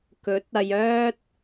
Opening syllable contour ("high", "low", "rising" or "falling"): rising